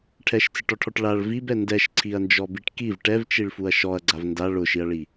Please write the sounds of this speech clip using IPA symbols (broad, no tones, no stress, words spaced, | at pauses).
ʈʰɛʃt͡sɪʈɔʈʰɔʈ ɭaɭ vibɛ ndɛʃǀʰiɐ̯nd͡ʒɔbiʈ kiv ʈɛvt͡ʃiɭfuɐ̯ ʃɔɐ̯ɡ͡ǀav nda ɭʊʃiɐ̯ɭi